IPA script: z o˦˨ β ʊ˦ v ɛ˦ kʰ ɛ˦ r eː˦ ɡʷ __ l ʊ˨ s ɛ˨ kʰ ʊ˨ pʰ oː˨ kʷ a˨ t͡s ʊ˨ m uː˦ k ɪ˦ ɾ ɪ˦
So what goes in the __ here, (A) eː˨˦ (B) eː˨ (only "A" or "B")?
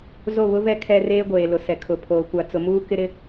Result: B